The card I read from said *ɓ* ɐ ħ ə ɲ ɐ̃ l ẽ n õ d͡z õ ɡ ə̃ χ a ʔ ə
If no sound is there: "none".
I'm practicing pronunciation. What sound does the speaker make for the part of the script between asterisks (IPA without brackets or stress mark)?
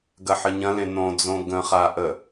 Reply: ɡ